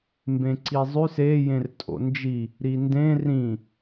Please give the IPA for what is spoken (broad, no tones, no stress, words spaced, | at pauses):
mbẽǀizˤʉs e jẽrtʼo̰nd͡ʒi | ɾindẽ rĩ